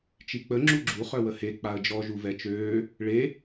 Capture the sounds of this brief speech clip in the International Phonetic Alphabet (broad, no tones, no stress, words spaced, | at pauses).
t͡ʃik͡pə ŋ͡ǁuɡ͡ǁu χœwəhe k͡paə̯d͡ʒɔ ʒuvɛt͡ʃøː | ɭe